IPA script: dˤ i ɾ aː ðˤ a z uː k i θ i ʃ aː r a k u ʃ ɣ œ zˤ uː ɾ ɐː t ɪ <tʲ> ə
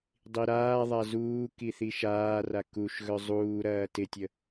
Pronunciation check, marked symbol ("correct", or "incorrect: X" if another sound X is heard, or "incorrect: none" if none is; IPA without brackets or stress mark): correct